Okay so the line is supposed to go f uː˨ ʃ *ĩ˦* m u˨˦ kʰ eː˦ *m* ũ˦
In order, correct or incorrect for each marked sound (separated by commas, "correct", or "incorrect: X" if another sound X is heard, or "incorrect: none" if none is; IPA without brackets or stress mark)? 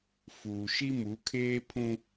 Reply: incorrect: i˦, incorrect: pʰ